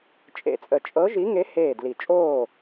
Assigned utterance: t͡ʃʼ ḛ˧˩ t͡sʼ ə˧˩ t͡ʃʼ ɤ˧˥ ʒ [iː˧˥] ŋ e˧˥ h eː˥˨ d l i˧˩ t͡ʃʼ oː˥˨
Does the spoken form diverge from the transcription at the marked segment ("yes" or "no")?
yes